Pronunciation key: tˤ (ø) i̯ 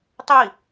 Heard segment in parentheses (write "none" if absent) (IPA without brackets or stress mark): ø